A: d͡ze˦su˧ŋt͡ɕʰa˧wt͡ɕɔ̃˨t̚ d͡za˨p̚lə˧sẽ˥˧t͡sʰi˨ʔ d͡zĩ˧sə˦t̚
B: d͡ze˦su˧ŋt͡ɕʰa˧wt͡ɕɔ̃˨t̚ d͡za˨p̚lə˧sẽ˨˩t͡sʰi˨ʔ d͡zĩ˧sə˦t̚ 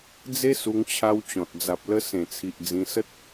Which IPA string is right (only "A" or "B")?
B